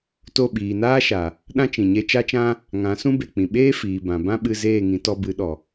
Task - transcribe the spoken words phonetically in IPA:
t o˦˨ ɓ iː˨ n aː˦ ʃ a˨ | ɗ ã˦ t͡ʃ ĩ˨ ɲ e˧ t͡ʃ a˦ t͡ʃ ã˦ | ŋ ã˨˦ s ũ˦ b e˨ k͡p ĩ˨ ɓ eː˦ f iː˨ b ã˨ b ã˦ ɓ ɨ˧ z eː˦˨ ŋ ĩ˨˦ t ɔ˧ b ɨ˨˦ ɗ ɔ˨

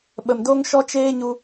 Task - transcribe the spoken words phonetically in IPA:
ɓ ə˨ m d o˦ ŋ ʃ ɔ˦ t͡ʃ eː˦ ɲ u˧

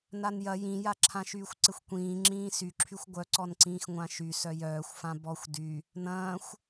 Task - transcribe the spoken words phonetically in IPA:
n a n j ɐ j ĩ j a ǁʰ ã ʃ yː xʷ ǀ ɪ xʷ kʷ ĩː ŋ͡ǁ ĩː s y ǁʰ y xʷ ɡʷ œ ǀ ɔ n ǀ ĩː x ŋʷ ã ʃ y s œ j œː xʷ f ã b ɔ xʷ d y | n ɐ̃ː xʷ

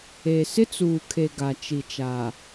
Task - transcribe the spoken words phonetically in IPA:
e˨ s ɪ˦ t͡s uː˨ kʰ e˨ ɡ a˨ t͡ʃ i˨ t͡ʃ a˨

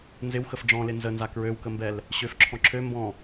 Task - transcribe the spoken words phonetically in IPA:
n z ɪ w x ə f ɖ͡ʐ ɔ̃ l ɪ n z ə n z a k ɹ ø w k ə m b ɛ l | ɕ ø f ǁʰ ɔ̃ ǁʰ ø m b ɔ̃

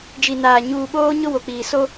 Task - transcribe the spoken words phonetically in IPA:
d͡ʒ i˨ n aː˨ ɲ uː˨ ɓ oː˦ ɲ ʊ˦ w o˨ k͡p iː˨ s o˦

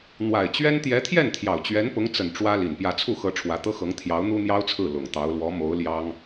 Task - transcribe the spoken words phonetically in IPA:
n̪ w a˨˩ ɪ̯ t͡ɕ ɥ ɛ˥ n t̪ j ɛ˧˥ t̪ʰ j ɛ˥˩ n t̪ʰ j ɑ˨˩ ʊ̯ t͡ɕ ɥ ɛ˧˥ n p ʊ˧˥ ŋ t͡s ə˨˩ n ʈ͡ʂ w ä˥ l i˨˩ n p j ä˥˧ t͡sʰ u˥˩ x ɤ˧˥ ʈ͡ʂʰ w ä˧˥ t̪ ɤ˥ x ɤ˧˥ ŋ t̪ʰ j ɑ˧˥ ʊ̯ n̪ u˥ n̪ j ɑ˥ ʊ̯ t͡sʰ ɹ̩˥˩ l ʊ˨˩ ŋ t̪ ɑ˧˥ ʊ̯ l w ɔ˧˥ m o˧˥ ʊ̯ l j ɑ˥ ŋ

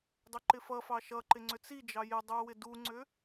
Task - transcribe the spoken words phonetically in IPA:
dˤ ʏ ǃ ɪ f ʌ f ɑ ʃ ʌ ǃ ɪ ŋ͡ǀ ʏ t͡s i d͡ʒ ɑ j ɪ dˤ u w ɪ d u ŋ͡ǀ ʏ

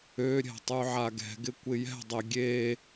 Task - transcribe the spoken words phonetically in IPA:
ø ɾʲ ɛ̤ tˤ y ʕ a ɡ ɛ̤ ɡ ɪ kʷ ɪ j ɛ̤ dˤ e ɡʲ e

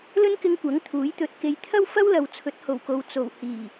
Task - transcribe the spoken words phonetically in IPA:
l ɵ˥ n k ɪ˧ ŋ kʷ ɐ˨˥ ŋ t̪ʰ uː˨˥ j t̪ ɵ˨ t̚ k e˨˧ j t̪ʰ ɐ˥ w f ɐ˥ w l ɐ˨ w t͡sʰ ɵ˨˥ t̚ h o˨˩ w k o˨ w t͡s o˨˩ w h iː˨˩

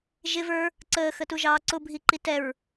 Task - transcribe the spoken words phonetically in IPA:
ʒ ɪ v ə˞ | ǀ əː x ə t u ʒ ɑː ǀ ʊ bʱ i ǃ i t ɛ ɹ

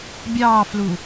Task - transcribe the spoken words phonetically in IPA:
bʲ ɑː f l u

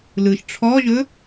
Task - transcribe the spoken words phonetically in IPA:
l ɯ ʃ ʈ͡ʂʰ ɔ ʒ ɵ

